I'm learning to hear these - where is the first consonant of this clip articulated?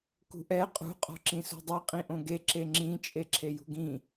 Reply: velum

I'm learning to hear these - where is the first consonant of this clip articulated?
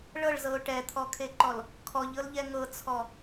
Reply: retroflex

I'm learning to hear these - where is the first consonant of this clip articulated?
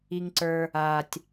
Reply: velum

